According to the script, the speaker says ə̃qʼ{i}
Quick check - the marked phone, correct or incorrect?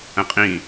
incorrect